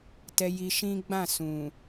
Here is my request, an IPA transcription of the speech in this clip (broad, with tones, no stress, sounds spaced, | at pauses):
t ɛ˧ j i˧ ʃ ĩ˦ ɡ͡b ã˦˨ s ũ˨